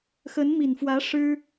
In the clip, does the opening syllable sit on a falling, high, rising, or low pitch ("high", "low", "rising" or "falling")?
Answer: rising